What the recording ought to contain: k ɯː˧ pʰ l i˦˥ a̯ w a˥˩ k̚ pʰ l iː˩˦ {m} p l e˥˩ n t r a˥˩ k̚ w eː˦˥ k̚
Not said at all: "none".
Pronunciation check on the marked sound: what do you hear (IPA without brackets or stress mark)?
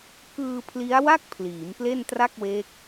m